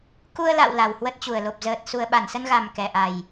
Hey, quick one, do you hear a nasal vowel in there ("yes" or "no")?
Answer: no